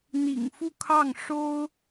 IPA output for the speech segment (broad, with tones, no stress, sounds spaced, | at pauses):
n̪ ḭ˨˩ ŋ f u˥˧ kʰ ɑ˥˩ ŋ ʂ o˥ ʊ̯